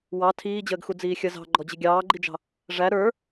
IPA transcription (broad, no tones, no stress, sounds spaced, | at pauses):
w ɑ tʰ iː d͡ʑ əː ɡ x u d͡z iː xʲ ə z ɑ̤ ɡ͡ǃ ɔ d͡ʑ ɪ ɡʲ ɑː ɡ͡ǃ i d͡ʒ ɑ̤ | ʐ æ ɾ ə˞